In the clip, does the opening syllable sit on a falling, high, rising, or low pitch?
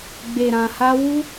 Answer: low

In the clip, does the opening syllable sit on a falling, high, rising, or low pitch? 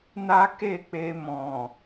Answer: high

